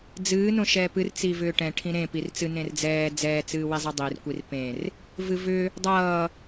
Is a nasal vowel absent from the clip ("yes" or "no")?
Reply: no